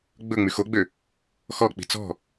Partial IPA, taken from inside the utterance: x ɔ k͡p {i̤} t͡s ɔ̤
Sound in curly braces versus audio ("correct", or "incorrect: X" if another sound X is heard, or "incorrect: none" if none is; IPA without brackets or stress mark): correct